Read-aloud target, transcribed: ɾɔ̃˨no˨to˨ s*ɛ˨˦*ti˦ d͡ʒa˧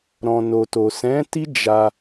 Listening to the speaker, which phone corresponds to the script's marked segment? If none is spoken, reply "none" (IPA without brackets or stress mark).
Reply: ɛ̃˨˦